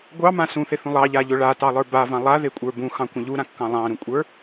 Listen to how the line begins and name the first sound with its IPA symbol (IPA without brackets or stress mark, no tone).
ɡʷ